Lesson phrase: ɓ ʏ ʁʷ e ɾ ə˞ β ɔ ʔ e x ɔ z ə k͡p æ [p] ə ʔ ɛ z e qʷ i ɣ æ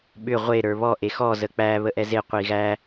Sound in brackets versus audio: incorrect: β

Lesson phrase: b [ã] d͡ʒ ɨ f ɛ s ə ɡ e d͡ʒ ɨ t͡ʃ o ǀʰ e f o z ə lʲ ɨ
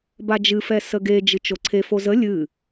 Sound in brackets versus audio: incorrect: a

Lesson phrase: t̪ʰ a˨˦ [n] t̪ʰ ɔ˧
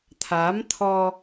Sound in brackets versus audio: incorrect: m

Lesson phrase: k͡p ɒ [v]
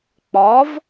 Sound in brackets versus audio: correct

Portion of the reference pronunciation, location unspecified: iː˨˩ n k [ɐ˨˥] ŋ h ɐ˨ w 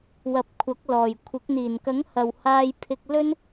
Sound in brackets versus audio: correct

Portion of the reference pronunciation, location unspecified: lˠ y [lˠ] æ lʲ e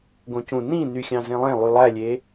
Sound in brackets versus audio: correct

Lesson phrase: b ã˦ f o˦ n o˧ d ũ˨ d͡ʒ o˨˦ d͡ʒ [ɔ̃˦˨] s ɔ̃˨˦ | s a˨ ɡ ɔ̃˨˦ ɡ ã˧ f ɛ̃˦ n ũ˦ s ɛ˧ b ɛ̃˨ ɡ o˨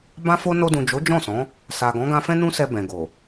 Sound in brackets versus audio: correct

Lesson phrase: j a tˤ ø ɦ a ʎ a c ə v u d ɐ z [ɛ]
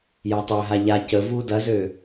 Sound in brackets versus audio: incorrect: ø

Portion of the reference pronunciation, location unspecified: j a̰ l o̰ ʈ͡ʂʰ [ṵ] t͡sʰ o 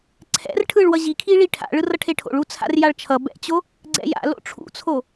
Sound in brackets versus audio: correct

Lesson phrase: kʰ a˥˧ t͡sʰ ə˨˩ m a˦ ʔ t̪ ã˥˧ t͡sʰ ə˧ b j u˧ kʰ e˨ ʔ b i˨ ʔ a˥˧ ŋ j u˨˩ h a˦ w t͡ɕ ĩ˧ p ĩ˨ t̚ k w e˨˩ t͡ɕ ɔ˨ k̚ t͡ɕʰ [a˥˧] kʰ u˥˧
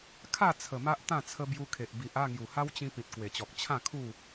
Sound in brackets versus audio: incorrect: ã˥˧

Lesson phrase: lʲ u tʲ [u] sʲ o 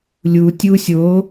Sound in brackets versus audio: correct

